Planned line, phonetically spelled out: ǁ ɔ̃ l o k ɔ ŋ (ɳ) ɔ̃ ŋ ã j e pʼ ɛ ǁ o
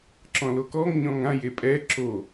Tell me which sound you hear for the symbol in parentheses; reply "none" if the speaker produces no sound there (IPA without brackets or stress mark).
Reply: ɲ